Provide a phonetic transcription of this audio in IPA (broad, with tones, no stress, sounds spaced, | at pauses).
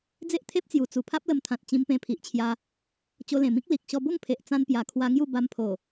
d͡z e˦ ʔ t̪ʰ e˦ p̚ t͡s j u˨˩ t͡s u˨˩ pʰ a˦ p̚ l ə˧ m t̪ʰ ã˨ t̚ t͡ɕ ĩ˧ m p ẽ˧ pʰ i˨ ʔ t͡ɕʰ j a˧ | t͡ɕ o˧ l ẽ˨˩ m ĩ˦ k̚ l i˨ k̚ ɕ ɔ˧ b o˥˧ ŋ pʰ e˨ ʔ t͡s ã˧ n p j a˨˩ kʰ w a˧ ŋ j u˥˧ b a˧ m pʰ o˨˩